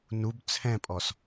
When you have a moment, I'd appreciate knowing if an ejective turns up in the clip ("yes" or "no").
yes